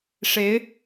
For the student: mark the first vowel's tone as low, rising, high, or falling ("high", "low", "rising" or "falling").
rising